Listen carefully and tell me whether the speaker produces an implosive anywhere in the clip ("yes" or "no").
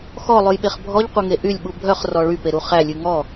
yes